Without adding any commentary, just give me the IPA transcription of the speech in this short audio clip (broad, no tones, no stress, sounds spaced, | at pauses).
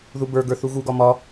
ð u b ə˞ ɡ ə˞ θ u ɣ u ɡ ɒ m ɒ